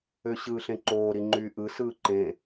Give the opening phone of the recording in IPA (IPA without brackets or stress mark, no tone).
ø